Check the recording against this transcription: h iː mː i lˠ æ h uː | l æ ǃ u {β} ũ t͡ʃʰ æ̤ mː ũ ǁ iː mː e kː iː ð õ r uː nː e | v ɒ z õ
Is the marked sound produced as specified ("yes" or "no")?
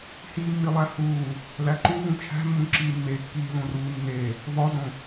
yes